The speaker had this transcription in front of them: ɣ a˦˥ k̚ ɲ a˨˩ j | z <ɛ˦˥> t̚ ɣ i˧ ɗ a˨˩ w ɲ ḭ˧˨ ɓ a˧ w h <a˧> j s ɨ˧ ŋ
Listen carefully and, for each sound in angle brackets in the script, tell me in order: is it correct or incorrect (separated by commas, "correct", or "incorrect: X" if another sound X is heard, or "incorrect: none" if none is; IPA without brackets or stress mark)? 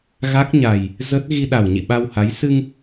incorrect: ə˦˥, incorrect: a˨˦